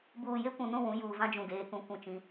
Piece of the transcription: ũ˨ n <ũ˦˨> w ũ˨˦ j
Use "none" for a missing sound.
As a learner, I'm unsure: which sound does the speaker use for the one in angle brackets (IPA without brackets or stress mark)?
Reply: ũ˦˨